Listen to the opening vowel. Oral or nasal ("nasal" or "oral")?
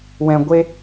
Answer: nasal